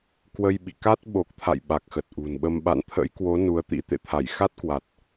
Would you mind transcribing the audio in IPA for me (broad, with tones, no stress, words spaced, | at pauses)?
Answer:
kwə˧j ɓḭ˧˨ka˦˥t̚ ɓo˨˩k̚t̪ʰa̰˧˨j ɓa˨˩k̚xə˨˩t̚ʔṳ˨˩nɓə˧m ɓa̰˧˨nt̪ʰə̰˧˥j kwo˨˦ nu˨˦ə̯t̪ḭ˧˥ t̪ḛ˧˨t̪ʰa˧˩jxa˦˥t̚kwa˨˩t̚